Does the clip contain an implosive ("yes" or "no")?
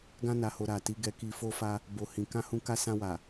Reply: no